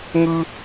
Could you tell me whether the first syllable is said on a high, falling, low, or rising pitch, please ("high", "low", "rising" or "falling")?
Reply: high